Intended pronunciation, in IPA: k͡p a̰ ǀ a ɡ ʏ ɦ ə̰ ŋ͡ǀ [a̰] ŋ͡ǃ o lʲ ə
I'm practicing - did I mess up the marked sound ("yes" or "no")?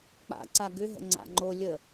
no